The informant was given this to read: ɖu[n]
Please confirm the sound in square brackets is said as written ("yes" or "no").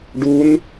yes